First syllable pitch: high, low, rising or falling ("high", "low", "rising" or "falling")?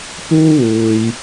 high